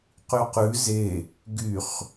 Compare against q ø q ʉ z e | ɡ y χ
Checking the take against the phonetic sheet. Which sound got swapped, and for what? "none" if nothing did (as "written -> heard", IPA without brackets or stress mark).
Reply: ø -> y